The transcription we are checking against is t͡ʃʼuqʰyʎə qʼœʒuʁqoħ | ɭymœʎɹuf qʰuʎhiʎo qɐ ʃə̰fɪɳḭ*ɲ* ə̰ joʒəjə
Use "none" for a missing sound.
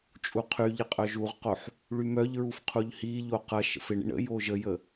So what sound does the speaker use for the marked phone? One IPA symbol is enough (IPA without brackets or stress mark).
ɳ